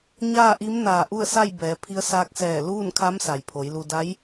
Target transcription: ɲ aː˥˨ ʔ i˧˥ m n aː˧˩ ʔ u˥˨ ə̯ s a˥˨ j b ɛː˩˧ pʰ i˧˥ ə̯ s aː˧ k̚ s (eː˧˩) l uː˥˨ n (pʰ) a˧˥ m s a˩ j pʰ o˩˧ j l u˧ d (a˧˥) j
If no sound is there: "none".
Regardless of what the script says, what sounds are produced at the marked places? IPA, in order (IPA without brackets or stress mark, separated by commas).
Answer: ɛː˧˩, kʰ, a˧˥